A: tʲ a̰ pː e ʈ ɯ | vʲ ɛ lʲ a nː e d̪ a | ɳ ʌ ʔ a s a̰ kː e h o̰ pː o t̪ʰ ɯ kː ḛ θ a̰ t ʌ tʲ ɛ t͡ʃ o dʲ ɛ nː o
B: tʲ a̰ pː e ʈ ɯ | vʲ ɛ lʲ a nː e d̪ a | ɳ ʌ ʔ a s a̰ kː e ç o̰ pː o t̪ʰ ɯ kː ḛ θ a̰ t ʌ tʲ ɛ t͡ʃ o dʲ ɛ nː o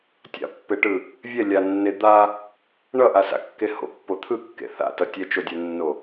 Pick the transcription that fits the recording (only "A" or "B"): A